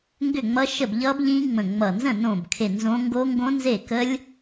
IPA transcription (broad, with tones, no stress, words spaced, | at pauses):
ŋɡʏ˥˩ŋ͡mʌ˦˥ʃə˥˩b ʎʌ˦˥bʎĩ˦˥ ŋ͡mə̃˧˩ŋ͡mʌ˧˩ nzə̃˥˩nõ˧˩bkʰe˧˩ nzõ˦˥ ŋɡo˦˥ŋɡõ˦˥nze˥˩kə˦˥lʲ